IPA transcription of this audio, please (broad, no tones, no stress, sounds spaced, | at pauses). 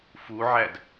f u ʕ æ d